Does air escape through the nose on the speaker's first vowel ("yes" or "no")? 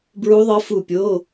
no